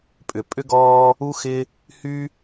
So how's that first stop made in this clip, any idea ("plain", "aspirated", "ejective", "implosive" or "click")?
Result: ejective